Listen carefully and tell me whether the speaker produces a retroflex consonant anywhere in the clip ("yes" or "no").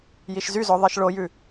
yes